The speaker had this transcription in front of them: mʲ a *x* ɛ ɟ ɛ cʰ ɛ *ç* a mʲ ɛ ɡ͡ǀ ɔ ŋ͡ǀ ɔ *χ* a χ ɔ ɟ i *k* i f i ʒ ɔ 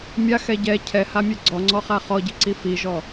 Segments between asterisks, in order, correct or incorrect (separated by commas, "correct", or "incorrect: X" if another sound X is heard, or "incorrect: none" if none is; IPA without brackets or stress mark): correct, incorrect: h, correct, incorrect: ǀ